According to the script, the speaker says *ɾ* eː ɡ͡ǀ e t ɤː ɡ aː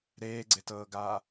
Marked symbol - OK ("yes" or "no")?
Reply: yes